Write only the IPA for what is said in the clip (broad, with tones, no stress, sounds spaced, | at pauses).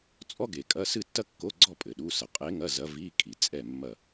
t͡sʼ ɔ˥ ɡ e˨ kʼ ɐ˧˥˧ s ɨ˥˧ tː ɐ˥ kː o˧˥˧ ɡ͡ǀ ɔ˥˧ pʼ ɘ˨ ɗ u˧˥˧ s ɐ˨ qʼ e˧˥ ŋ ɐ˧˥˧ z ɐ˧˥ v i˧˥˧ kʼ i˨ t͡sʼ ɛ˥˧ mː ɐ˥˧